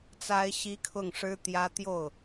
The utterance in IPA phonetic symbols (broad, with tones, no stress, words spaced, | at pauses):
t͡sa˥ɪ̯ɕi˥ kʰʊ˥˩ŋʂɻ̩˥t̪jä˥ t̪jo˥˩ʊ̯